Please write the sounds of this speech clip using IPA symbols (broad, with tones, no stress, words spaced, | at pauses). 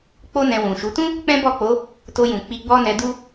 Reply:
k͡po˦nɛ̃˧wũ˨ʃu˨˦ tũ˦ | k͡pɛ̃˦bɔ˦˨k͡po˨˦ | to˧jũ˨ k͡pi˧ɡ͡bɔ˦ nɛ˧du˦